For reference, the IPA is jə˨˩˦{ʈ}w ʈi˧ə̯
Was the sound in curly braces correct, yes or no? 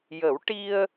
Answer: no